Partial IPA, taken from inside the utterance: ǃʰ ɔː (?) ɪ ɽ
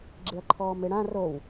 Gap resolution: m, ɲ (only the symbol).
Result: m